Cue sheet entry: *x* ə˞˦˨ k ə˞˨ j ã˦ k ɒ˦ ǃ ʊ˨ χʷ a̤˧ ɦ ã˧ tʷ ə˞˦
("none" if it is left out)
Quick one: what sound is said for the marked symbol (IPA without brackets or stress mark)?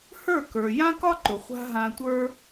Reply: h